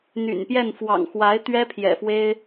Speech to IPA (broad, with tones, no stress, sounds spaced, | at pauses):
n̪ y̰˨˩ n p j ɛ˥˩ n f w ɑ̰˨˩ ŋ x w a˧˥ ɪ̯ t̪ ɥ ɛ˥ pʰ j ɛ̰˨˩ f w e˥ ɪ̯